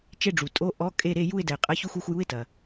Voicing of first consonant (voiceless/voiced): voiceless